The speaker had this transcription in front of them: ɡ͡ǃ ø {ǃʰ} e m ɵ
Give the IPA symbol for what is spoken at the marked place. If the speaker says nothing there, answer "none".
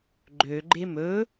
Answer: ɡ͡ǃ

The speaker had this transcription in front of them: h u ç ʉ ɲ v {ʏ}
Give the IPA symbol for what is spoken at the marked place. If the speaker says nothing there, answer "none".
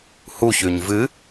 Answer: ɨ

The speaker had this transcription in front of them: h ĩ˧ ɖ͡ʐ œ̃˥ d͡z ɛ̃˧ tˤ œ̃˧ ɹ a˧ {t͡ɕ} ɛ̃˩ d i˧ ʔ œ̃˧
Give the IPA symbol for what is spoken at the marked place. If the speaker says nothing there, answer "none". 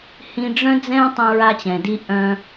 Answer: t͡ɕ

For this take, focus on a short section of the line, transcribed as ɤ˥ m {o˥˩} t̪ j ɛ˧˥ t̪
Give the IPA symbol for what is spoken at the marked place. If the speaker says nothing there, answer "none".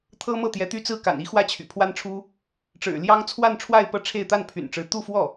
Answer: ɤ˥˩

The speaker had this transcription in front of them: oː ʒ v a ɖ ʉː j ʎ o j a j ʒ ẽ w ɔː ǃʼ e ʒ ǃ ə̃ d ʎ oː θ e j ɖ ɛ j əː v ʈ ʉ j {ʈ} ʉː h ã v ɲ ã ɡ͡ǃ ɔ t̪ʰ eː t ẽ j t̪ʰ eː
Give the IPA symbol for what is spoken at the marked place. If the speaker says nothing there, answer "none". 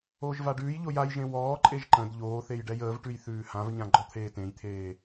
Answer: θ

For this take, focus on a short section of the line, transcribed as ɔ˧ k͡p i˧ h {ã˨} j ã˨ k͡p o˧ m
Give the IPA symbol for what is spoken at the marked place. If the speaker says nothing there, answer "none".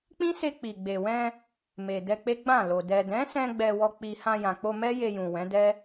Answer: ã˧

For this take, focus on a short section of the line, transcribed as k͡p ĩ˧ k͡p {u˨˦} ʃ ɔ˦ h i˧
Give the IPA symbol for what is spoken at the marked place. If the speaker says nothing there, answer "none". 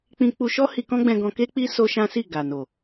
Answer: u˧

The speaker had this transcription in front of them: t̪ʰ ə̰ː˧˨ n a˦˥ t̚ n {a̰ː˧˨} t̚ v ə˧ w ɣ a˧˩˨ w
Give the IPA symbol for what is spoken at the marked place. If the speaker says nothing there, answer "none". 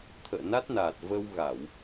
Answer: aː˨˩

